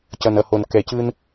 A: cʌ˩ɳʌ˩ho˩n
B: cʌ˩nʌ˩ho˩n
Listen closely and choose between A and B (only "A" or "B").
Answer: B